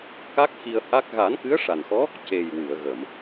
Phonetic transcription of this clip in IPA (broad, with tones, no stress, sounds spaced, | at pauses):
k a˦˥ k̚ x i˧ ə̯ h a˦˥ k̚ ɣ a˨˩˦ n k ɨ˧˥ ə̯ ʂ a˨˩ n x ɔ˧˥ | c e˨˩ j w ɨ˨˩˨ ə̯ ɣ ə˨˩˨ m